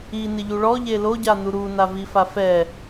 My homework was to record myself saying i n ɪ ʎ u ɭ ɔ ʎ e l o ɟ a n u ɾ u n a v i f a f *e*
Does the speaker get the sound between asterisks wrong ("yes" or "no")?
yes